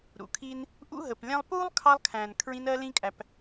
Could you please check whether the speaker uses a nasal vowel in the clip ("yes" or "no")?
yes